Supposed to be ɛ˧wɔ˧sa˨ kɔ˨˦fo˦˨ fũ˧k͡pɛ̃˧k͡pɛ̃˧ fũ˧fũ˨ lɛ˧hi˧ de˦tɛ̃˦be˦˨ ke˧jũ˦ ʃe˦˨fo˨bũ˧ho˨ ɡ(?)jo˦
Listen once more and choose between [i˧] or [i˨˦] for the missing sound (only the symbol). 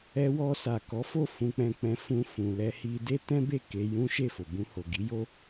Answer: i˨˦